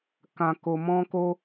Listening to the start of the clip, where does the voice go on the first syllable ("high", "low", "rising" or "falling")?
low